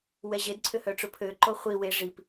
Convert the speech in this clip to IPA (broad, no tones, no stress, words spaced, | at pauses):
wɛʑed ǀʰʏhœʈ͡ʂʊpʰø ǃoχʷi we ʐip